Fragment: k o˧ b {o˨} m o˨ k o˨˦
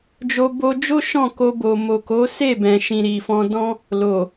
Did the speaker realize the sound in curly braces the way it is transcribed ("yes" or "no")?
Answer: yes